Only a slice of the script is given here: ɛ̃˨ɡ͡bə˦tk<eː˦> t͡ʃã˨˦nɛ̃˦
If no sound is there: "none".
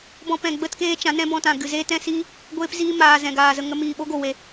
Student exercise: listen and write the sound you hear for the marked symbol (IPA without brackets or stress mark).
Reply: eː˦